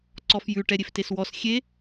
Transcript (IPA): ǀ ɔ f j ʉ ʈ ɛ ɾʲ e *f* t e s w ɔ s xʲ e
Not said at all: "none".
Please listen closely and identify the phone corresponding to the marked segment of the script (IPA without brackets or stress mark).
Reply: f